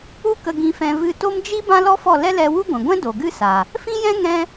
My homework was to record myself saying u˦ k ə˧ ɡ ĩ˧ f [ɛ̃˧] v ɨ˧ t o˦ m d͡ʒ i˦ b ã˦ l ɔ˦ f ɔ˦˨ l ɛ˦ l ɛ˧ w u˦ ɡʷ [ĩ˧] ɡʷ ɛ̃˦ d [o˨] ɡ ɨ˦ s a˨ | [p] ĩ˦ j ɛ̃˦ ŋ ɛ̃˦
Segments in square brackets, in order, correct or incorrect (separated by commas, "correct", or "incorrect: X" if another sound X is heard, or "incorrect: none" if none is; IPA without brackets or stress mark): correct, incorrect: ĩ˨, correct, incorrect: f